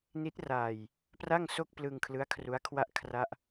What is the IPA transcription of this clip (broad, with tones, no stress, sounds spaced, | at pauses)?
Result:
n i˦˥ t̚ r aː˧ j | p r a˥˩ ŋ s o˥˩ k̚ p l ɯ˧ ŋ kʰ l ɯ˦˥ a̯ kʰ r u˦˥ a̯ kʰ w a˥˩ ʔ kʰ r a˥˩ ʔ